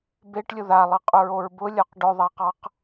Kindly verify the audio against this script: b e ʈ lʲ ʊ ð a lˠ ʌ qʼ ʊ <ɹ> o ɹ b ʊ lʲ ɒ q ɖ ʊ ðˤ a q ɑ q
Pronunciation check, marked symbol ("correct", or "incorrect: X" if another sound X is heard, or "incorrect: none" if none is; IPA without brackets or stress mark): correct